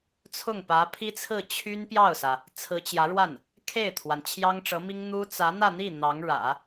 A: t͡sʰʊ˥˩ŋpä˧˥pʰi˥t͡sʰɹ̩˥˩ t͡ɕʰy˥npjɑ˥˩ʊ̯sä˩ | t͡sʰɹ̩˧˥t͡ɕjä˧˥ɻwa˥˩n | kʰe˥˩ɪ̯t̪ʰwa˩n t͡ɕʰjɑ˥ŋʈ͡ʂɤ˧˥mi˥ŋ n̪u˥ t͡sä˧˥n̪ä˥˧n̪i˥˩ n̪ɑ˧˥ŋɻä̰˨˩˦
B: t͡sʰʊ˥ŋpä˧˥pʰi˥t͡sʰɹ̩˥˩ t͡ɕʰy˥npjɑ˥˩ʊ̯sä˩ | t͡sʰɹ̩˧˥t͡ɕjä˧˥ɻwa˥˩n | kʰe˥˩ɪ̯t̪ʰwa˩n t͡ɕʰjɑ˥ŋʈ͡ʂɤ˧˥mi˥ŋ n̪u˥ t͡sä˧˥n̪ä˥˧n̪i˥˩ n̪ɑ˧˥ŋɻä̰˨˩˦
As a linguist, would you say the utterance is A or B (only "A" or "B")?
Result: A